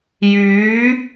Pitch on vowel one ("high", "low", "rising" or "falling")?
rising